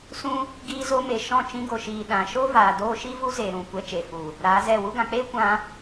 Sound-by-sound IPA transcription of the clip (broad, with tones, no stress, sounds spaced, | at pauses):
s ũ˦ | ɡ iː˧ z o˧ m e˨ ʃ ɔ̃˦˨ t͡ʃ ĩ˧ ɡ o˨ ʃ iː˨ ɗ ã˨ ʃ o˦ v aː˨ d oː˧ ʃ i˦ v u˦ z eː˨ ɾ ũ˨ kʷ ɛ˧ t͡ʃ e˨ f u˨ | ɾ aː˨˦ z ɛ˦˨ w u˧ ɡ ã˨ k͡p eː˦ kʷ ã˧